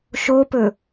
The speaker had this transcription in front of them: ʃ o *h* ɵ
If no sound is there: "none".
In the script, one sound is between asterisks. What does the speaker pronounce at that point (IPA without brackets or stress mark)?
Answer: p